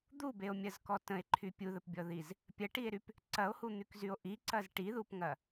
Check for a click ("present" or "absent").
present